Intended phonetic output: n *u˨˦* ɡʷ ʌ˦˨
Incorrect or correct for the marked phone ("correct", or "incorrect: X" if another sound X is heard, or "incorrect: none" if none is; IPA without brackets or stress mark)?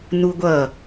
incorrect: u˦